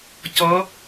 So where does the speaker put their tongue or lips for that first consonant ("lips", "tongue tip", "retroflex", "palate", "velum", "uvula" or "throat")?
palate